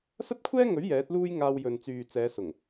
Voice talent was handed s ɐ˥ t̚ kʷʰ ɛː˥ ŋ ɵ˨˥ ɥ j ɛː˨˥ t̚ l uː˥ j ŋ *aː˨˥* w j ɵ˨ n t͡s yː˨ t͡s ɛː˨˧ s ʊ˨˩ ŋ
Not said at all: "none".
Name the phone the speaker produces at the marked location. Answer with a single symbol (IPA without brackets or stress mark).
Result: aː˧